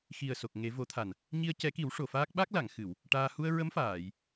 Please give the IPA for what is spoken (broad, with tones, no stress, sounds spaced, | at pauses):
x i˨˩ ə̯ s o˨˩ k̚ ŋ e˨˩˦ v o˨˩˦ t̪ʰ a˨˩ n | ɲ i˧ ə̯ c ɛ˨˩˦ k i˨˩˦ w ʂ o˨˩ f aː˦˥ k̚ ɓ a˦˥ k̚ l a˨˩˨ ŋ x ɨ˨˩˨ w | ʈ aː˧ h u˧ ə̯ ɹ ə˧˥ m f aː˨˩˨ j